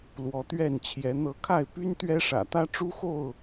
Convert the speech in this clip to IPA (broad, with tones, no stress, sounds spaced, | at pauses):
l w ɔ˨˦ t̪ ɥ ɛ˥˨ n t͡ɕʰ j ɛ˨˦ n̪ ɤ˨˦ kʰ a˥˨ ɪ̯ p y˦ n t̪ ɥ ɛ˦ ʂ ä̰˨˩ t̪ ä˦ ʈ͡ʂ u˦ x o˥˨ ʊ̯